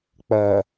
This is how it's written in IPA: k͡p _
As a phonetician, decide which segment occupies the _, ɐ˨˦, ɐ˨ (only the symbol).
ɐ˨